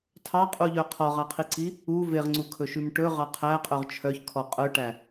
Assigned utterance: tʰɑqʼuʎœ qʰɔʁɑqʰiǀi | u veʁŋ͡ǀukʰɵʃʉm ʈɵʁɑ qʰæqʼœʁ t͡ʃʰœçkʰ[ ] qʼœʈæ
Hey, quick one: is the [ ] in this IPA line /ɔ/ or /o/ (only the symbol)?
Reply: ɔ